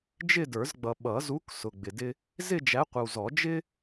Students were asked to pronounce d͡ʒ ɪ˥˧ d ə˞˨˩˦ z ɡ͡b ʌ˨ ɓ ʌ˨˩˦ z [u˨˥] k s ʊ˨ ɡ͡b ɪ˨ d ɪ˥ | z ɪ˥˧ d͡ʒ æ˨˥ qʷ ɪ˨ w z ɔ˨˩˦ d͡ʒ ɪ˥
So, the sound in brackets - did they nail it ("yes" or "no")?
yes